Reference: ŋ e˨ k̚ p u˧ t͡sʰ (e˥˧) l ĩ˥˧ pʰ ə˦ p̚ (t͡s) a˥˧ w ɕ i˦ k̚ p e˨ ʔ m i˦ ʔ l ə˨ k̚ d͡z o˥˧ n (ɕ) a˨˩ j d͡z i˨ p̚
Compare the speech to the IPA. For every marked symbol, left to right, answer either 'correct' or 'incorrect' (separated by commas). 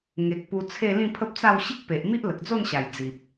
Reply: correct, correct, correct